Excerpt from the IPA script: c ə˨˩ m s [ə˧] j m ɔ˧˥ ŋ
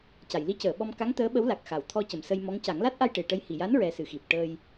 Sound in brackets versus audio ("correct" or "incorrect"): correct